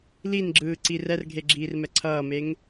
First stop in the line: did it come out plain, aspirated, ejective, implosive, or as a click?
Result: click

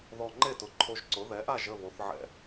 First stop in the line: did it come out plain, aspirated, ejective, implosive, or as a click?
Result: click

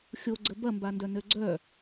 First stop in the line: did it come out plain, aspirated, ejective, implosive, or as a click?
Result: click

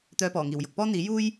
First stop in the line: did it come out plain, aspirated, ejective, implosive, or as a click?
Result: plain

